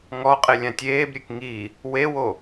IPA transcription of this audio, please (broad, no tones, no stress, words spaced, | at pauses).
ŋɔqʼe lʲãtʲeːbɾʲek ŋi | wewo